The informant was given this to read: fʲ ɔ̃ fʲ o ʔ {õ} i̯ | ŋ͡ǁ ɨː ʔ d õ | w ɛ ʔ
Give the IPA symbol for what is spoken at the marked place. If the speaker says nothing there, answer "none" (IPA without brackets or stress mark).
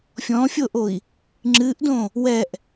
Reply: o